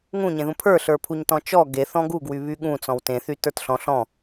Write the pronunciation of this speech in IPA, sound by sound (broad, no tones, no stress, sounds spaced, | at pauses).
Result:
ŋ ũ ɲ ẽ ð ũ pʰ ə˞ ɬ ə˞ pʰ u ɲ t ɔ̃ t͡ʃ ɔ ɡ e θ ɔ̃ ɡ u ɡ w y β y ɠ ũ t͡s ɔ̃ w t ẽ θ y t ə˞ t ɬ ɔ̃ ɬ ɔ̃